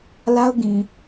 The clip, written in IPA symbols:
l a˦ ʊ̯ ɡ ĩ˨

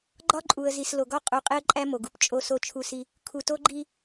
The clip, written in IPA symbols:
ɡ͡ǃ ɒ˦ ǃʼ u˨ ə̯ z i˨ s l o˨ ɡ ɒ˦ qʼ u˨ qʼ e˦ ə̯ ǃʼ æ˦ m o˨ ɡ u˨ p t͡ʃʼ o˦ s o˦ t͡ʃʰ u˦ s i˦ | kʰ u˨ t o˦ ɡ͡ǃ i˦

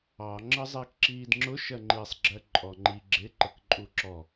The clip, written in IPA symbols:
ɑ ŋ͡ǁ ə zˤ iː k ǁ iː d ŋ͡ǁ ʊ ʃ ɜ ŋ͡ǃ i sˤ ɡ͡ǁ ɜ ǃʼ ɔ ŋ͡ǃ i ɡ͡ǁ ɪ ǃ ə k ǃʼ u ǁ ɔ

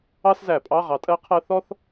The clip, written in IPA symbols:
ɑ˥ s z æ˧˩˧ pʼ ɑ˧˥˧ ʁ ɑ˨˦ tʼ ɜ˥ qʰ ɜ˥ θ ɔ˥ θ

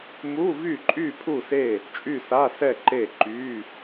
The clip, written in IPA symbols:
m u˧˥˧ v y˥˨ ǃʼ y˥˨ pʰ u˥˨ s e˥˨ | t͡ʃʼ y˥˨ s a˧˥˧ s ɛ˥˨ ǃ e˥˨ ǃ y˧˥˧

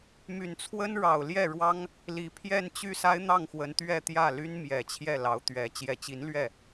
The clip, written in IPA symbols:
m y˨˩ n t͡sʰ w ə˥ n ɻ ɑ˨˩ ʊ̯ l j ɛ˥˩ ɻ w ɑ˥ ŋ | l i˧˥ pʰ j ɛ˥˧ n t͡ɕ y˥˩ s a˥ ɪ̯ n̪ ɑ˥˩ ŋ x w ə˧˥ n t̪ ɥ ɛ˥˧ t̪ j ä˥˩ l y˥ n m j ɛ˨˩ t͡ɕʰ j ɛ˥˩ l ɑ˧˥ ʊ̯ t̪ ɥ ɛ˧˥ t͡ɕ j ɛ˨˩ t͡ɕ i˧˥ n l ɥ ɛ˥˩

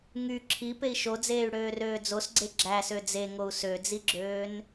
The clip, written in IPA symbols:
ŋ y ǁʰ i p e i̯ ʃ o d͡z eː y̯ ɽ øː r øː d͡z o s ɡ͡ǀ e ɡ͡ǁ æ s ø d͡z e ŋ o u̯ s ø d͡z i ɡ͡ǁ øː n

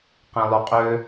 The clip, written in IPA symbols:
q ĩ lˠ y qʼ ø

